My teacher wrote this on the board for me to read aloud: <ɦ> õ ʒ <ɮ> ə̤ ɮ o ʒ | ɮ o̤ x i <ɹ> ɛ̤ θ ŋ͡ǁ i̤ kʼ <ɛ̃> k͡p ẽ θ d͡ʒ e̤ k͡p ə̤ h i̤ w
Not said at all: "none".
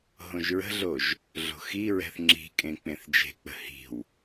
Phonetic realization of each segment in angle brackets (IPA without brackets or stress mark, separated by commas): ɦ, ɹ, ɹ, ẽ